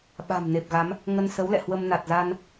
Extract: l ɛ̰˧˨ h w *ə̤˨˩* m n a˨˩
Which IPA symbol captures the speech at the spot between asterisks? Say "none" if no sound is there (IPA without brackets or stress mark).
ə˧